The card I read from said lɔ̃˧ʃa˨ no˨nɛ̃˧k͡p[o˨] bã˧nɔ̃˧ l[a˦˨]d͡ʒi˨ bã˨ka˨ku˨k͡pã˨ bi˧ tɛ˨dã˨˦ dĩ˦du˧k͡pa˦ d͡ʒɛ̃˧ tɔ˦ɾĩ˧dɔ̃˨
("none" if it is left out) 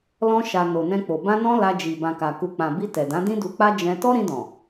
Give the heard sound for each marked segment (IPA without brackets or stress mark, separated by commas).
o˨, a˧